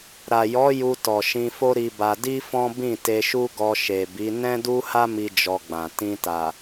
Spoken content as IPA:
ɾ a˨ j ɔ˨˦ j u˧ t ɔ˨ ʃ ĩ˧ f o˦ ɾ i˧ b a˧ d i˦ f ɔ̃˦ b ĩ˦˨ t e˧ ʃ u˦ ɡ ɔ˧ ʃ e˨ b i˨˦ n ɛ̃˦ d u˦ h a˦ m i˦ d͡ʒ ɔ˧ ɡ͡b ã˨ t ĩ˧ t a˨

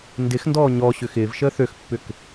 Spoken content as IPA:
n d ɪ x n d ɔː ɲ ɔ ɕ ʏ x ɪː v ʃ əː θ ø x pː ʏ k

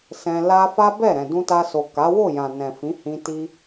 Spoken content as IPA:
s ɛ̃˧ l a˦ f a˦ b ɛ˦˨ ɾ ɛ̃˨ d ũ˧ t a˧ s o˨ k a˨˦ w o˦˨ j ã˨ n ɛ̃˨ f ĩ˨˦ h ĩ˧ t i˦

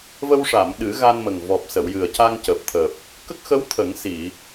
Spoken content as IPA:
v ə˧ w ʂ a˨˩˨ m ɗ ɨ˨˩˦ ɣ a˧ n m ə˨˩ ŋ v ɔ˨˩ p̚ s ə˨˩˨ w j ɨ˨˩ ə̯ c a˧ ŋ c əː˨˩ p̚ t̪ʰ əː˨˩ p̚ | k ə˦˥ k̚ x ə˧˥ w t̪ʰ ə˨˩˦ ŋ s i˨˩˨

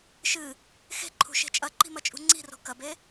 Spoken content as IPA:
ʃ ɨ | x e̤ ǃʰ ṳ ʃ e̤ t͡ʃʼ ɐ ǃ i̤ m ɐ t͡ʃʼ ṳ ŋ͡ǀ i̤ r o̤ k ɐ b e

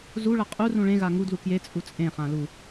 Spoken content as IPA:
z u ɭ ʌ qʼ u r ũ ɭ ẽ ɣ a ŋ u d l u k j e t͡sʼ u t͡sʼ ẽ χ ã l u

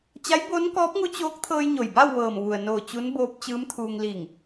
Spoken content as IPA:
t͡ɕ a˧˥ j b oː˧˥ n k ɔː˧˥ p̚ ŋ u˧˥ t͡ɕ oː˧˥ k̚ t̪ʰ ɤː˧ j ɲ o˩ j b a˥˨ w ʋ ɤː˧˩ m ʋ u˩ ə̯ n oː˧˩ t͡ɕ u˧˥ n b oː˧˥ p̚ t͡ɕ ɯː˧˥ m t̪ʰ uː˧ ŋ l iː˧˩ ŋ

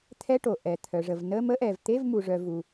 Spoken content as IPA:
t̪ʰ ɛ˧˥˧ ʈ o˩ ʔ ɛ˩ t̪ʰ œ˩ ʐ ə˩ v n ə˧˥˧ m ə˧˥˧ ʔ ɛ˩ v t̪ e˧˥˧ v m u˩ ʐ œ˩ v u˩

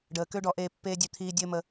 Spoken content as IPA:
ɖ əː˨ k ø˦ ɖ ɔ˧ ʔ eː˧ pː eː˧ dʲ ø˧ t̪ʰ iː˧ dʲ ɘː˧ m ə˧

